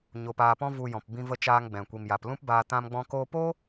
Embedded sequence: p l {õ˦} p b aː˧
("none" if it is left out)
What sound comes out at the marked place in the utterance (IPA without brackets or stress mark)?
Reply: ũ˦